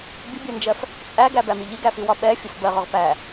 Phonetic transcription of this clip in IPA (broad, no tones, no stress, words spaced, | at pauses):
bʲʊbʲɜnd͡ʒɜf | t͡sʼæɡæbæmi ʎiɡæfiwɒ ɓɛfʲʊf bɜʁʊʁ pæ